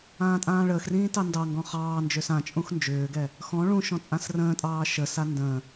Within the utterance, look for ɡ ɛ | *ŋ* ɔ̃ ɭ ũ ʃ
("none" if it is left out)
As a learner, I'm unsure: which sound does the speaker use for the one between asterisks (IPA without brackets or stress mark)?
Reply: x